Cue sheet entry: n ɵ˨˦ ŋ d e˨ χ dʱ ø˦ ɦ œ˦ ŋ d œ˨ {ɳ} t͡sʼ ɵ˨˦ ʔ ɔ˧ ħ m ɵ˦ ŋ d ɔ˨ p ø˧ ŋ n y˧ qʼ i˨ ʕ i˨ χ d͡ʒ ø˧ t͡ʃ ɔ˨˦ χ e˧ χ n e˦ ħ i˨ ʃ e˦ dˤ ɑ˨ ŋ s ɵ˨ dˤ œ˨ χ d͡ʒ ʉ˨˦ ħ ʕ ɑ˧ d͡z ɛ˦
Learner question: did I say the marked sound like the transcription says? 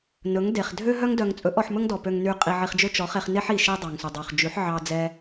no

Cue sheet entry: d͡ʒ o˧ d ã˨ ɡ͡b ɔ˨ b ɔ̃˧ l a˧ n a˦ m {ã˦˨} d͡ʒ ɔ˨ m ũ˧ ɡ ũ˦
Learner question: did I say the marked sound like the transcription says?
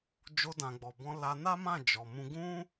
yes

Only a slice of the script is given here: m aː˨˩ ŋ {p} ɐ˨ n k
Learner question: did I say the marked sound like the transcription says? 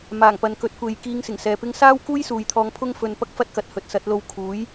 yes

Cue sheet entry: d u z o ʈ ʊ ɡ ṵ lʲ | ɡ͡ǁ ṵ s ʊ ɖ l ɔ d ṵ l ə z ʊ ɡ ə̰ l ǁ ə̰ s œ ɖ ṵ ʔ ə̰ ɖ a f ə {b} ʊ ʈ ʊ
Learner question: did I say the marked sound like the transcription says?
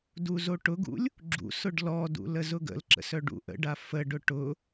no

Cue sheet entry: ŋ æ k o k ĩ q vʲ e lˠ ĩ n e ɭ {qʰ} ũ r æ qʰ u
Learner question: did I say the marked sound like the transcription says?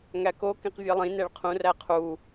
yes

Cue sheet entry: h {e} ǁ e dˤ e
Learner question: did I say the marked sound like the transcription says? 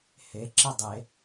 yes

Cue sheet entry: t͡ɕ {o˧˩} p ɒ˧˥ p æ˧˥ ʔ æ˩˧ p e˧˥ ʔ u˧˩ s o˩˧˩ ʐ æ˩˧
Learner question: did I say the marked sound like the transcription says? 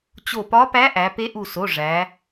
yes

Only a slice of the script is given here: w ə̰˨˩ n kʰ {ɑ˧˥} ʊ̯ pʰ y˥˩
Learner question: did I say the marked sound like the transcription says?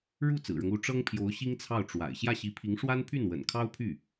no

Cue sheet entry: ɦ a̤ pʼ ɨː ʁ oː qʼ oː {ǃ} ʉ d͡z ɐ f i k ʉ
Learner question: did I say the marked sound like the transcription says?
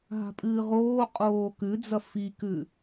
no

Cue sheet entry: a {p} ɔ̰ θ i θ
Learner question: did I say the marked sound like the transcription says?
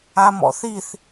no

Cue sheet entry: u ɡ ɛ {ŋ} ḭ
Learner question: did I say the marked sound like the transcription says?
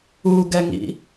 yes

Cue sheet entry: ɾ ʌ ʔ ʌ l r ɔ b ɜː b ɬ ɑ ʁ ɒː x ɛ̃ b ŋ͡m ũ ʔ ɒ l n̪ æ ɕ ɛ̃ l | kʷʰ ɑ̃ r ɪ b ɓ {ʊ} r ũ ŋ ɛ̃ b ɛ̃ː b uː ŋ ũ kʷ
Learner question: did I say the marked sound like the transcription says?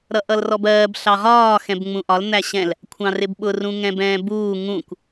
yes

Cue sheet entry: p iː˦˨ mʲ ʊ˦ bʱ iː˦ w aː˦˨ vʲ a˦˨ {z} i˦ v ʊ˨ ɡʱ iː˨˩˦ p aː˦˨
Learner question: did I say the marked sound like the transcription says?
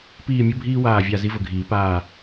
yes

